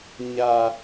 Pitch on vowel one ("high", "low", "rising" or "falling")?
low